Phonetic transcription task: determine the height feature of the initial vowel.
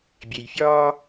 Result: mid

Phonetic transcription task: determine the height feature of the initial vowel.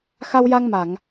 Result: low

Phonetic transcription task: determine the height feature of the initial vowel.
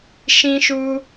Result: high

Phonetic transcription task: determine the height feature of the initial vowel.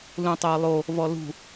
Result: high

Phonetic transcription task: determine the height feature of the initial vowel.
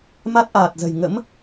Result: low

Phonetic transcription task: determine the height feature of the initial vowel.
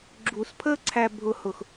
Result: high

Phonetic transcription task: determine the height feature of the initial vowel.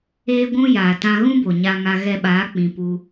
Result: mid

